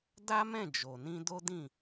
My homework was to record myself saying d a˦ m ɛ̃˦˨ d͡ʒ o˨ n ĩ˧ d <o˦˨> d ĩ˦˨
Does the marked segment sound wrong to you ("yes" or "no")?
yes